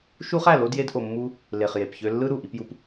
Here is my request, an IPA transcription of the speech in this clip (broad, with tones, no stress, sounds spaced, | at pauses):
ʃ u˦ χ æ˦˨ l o˦ d j e˦ d ʔ o˧ mː u˦ | l e˨ χ j e˨ p ç ø˧ lː ɯ˦ ɾ u˨ ʔ i˧ p j u˧ p